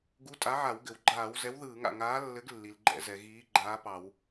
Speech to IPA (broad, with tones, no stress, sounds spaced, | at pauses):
ɡ u˨˥ tʼ a˨˥ ʕ a˧˩˧ w ɡ ɘ˩ w ɡ͡ǃ aː˧˩˧ w z ɛ˨˥ w ð ɯː˧˩˧ ŋ a̰˩ ŋ aː˨˥ lː ɘ˨˥ ɡ lː i˩ l ɡ͡ǃ ɛ̰˧˩˧ z ɛ˩ ɣ iː˨˥ ɡ͡ǃ aː˨˥ p ɑ˧˩˧ w